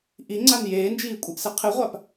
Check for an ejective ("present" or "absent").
present